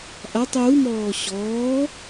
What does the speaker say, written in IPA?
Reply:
ʔatˤ jumɔː ɕɔː

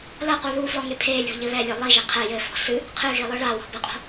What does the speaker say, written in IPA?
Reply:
lɐqu ðuflɔŋe pʰelʲɔ̤ʎɘ βɛlʲe lˠiʒe qʰɛ jɘfɔ̤ sɨ | qʰɨɣilˠɨ ɭawɔ̤bɨqʼo̤

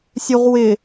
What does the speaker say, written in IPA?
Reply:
sʲuʁwɪ

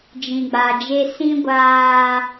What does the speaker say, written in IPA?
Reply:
d͡ʒĩ˨ɡ͡ba˨d͡ʒe˦ sĩ˦ ɡʷaː˦

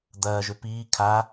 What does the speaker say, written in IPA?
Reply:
d̪ɐːʒø piː kʰa

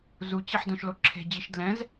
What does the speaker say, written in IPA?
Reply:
zut͡ɕiħdõʃlo ǁʰe̤d͡ʑiʃ dlɛ̃z

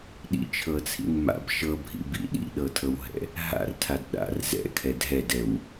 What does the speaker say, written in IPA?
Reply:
ɗḭt͡ʃʰɤt͡sʰḭn ma̰b ʃɤbʱḭbḭ ɗḭɗɤtʰɤwɦɛ̰ | ɦa̰rtʰad ɗa̰r zɛ̰kʰɛ dʱɛdɛw

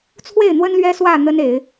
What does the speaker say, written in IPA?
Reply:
t͡sʰwe˥˨ɪ̯n̪wə˦nlɥɛ˦ swä˥˨ n̪ə˦ne˨˦ɪ̯

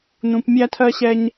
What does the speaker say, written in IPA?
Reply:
nũ˩pmʲæ˨tʰɜ˨ ɕɛ˨ɲ

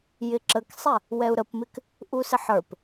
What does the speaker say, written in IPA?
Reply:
jɪǁəksˤɛ | wɛu̯ɾəpmɪk | ʔusɪħə˞p

